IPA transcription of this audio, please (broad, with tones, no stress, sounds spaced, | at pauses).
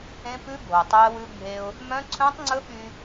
ẽ˦ p ʉ˦ bʱ o˨ tˤ œ˦ ə̯ w ʉ˦ bʱ e˦ ʊ̯ | m œ̃˦ ǀʰ œ̃˦ tˤ ŋ͡ǀ ɵ˦ ɓ y˦